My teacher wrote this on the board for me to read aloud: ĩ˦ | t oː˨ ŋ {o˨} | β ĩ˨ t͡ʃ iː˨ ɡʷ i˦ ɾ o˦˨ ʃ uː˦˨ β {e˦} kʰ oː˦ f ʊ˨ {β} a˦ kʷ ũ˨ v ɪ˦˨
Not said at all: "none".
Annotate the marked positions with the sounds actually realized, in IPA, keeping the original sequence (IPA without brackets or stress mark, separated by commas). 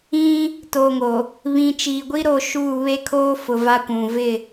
o˨, e˦, v